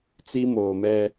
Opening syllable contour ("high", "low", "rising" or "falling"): high